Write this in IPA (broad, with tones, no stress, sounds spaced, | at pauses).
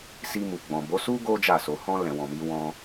s i˧ m u˨ ɡ͡b ɔ̃˨ b o˨˦ s u˦ ɡ o˦ d͡ʒ a˦˨ s o˧ h ɔ̃˦ l ɛ̃˧ w ɔ̃˧ m i˦ w ɔ̃˧